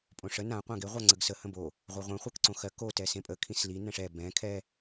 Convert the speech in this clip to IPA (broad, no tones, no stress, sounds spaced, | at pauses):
pʼ õ ʂ ə n ã qʷ ã ɡ e ʁʷ a ŋ͡ǀ ə ɡ s ə h ə̃ b o | ʁʷ ɛ ʁʷ ɛ̃ χʷ ɜ k ǀ õ x ɜ k o t ɛ s ẽ pʼ ə kʰ ĩ s l i n ɛ̃ ʂ ɛ b ɛ̃ kʰ ɛ